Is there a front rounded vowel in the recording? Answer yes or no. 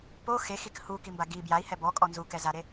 no